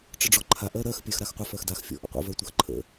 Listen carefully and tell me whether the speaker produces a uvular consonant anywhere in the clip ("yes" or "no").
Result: yes